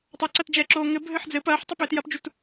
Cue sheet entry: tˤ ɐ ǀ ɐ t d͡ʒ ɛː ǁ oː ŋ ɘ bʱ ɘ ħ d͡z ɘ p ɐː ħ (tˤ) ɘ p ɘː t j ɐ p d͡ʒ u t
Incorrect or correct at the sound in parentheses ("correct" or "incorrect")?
correct